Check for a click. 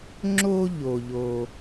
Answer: present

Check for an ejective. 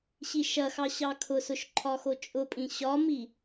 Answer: present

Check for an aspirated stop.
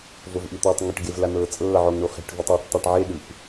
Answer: absent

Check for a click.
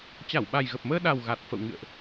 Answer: absent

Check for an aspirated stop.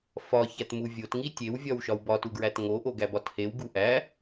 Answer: absent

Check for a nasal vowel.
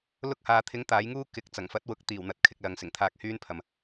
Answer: absent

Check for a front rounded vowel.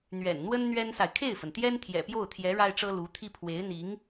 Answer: absent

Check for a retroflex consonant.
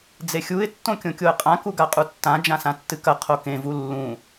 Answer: absent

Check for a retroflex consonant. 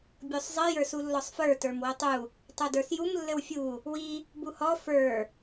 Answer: absent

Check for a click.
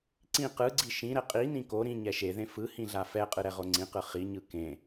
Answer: present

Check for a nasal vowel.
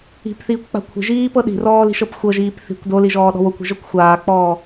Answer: absent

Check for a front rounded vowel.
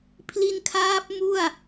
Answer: absent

